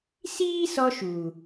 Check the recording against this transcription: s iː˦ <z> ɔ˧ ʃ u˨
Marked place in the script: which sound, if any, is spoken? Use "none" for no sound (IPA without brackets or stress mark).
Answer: s